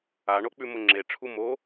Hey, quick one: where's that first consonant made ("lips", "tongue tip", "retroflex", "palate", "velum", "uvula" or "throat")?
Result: retroflex